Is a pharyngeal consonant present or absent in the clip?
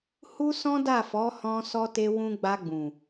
absent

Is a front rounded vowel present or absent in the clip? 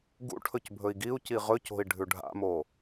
absent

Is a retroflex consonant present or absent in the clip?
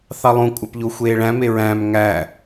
present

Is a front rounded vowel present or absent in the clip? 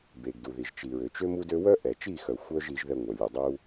present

